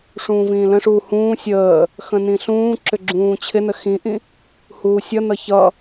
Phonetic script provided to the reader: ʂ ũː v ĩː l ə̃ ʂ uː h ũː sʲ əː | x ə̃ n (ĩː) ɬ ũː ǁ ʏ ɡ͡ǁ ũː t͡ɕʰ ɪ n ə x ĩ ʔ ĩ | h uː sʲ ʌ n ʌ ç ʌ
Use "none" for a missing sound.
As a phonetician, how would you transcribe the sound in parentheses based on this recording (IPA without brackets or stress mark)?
ĩ